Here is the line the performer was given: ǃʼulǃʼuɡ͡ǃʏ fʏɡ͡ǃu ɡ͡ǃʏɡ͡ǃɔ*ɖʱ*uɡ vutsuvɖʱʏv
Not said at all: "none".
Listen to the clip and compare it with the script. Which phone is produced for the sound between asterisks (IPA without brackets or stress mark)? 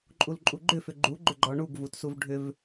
ɳ